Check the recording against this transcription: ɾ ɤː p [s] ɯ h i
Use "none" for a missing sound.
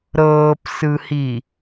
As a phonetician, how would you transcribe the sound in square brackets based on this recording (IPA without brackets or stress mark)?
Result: s